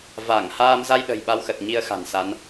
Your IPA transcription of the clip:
v a˧˩ ŋ h aː˧ m z a˧ j ɗ ə̤˨˩ j ɓ a˧ w x ə˨˩ t̚ ɲ i˧ ə̯ x a̤˨˩ n s a˨˦ n

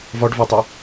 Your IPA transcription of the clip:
v ɒ ɖ v a tˤ o

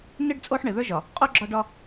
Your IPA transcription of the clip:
n ɪ˦ ɖ t͡sʼ o˦ ħ ɳ ɪ˨ ð ə˞˦ ʒ ɒ˨ | qʼ o˦ ɡ͡ǁ ɒ˦ ɖ ɒ˦

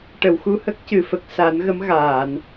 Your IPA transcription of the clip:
ʈ ə˨˩˨ w x u˧ h ə˦˥ k̚ c ɨ˨˩˨ f ə˨˩ k̚ s aː˨˩˦ n ɣ ə˧˥ m ɣ aː˨˩˨ n

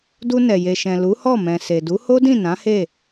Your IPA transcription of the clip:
d u˧ n ɛ˨ j e˨ ʃ ɛ̃˨ l u˨˦ h ɔ˦˨ m ɛ̃˨ s e˨ d u˨˦ h o˦ d ĩ˦˨ n ã˨˦ h e˦˨

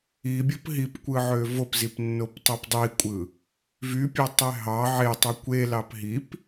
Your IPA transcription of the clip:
i bʲ o p ɦ i p kʷ ɯ ʕ ø v o p z i p nː o p tˤ ɯ p dˤ i kʷʼ ɯ | v y pʲ ɑ tˤ e ɦ ɑ ʕ e tˤ ø kʷ e l ɑ p ɦ i p

